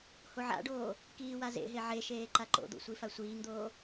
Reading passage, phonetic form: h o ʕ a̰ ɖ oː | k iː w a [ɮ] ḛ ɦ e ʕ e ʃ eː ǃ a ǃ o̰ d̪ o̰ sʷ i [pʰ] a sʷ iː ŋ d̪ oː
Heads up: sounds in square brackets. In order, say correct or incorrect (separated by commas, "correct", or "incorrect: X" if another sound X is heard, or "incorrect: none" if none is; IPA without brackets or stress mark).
incorrect: z, incorrect: f